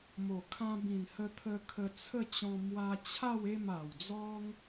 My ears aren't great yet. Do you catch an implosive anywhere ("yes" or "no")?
no